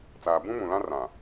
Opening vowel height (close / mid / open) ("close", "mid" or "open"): open